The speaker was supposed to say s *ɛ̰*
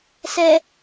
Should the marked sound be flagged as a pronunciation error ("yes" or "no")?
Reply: yes